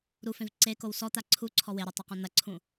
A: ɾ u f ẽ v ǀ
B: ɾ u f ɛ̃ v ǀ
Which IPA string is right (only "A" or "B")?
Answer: A